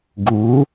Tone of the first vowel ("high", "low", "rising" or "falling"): rising